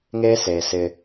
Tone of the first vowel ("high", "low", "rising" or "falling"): high